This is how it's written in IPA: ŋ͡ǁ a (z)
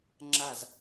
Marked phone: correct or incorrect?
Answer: correct